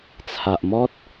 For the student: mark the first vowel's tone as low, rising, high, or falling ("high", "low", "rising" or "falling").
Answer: low